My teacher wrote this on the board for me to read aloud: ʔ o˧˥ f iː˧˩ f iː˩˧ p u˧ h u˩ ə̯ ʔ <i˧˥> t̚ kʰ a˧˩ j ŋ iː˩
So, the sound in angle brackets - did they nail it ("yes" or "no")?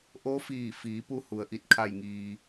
no